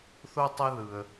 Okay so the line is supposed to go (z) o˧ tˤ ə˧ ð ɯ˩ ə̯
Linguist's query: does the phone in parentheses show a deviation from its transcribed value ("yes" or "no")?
yes